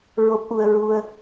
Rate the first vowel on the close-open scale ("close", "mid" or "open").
mid